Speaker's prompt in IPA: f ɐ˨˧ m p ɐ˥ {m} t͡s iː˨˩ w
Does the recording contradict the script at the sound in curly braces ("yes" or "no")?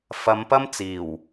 no